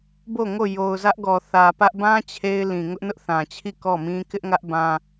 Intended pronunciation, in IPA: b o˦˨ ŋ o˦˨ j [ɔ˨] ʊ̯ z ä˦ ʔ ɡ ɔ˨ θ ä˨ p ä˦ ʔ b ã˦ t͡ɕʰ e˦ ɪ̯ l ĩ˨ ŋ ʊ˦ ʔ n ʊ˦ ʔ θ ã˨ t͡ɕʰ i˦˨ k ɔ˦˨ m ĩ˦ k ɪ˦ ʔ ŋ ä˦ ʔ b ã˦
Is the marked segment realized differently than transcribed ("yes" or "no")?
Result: yes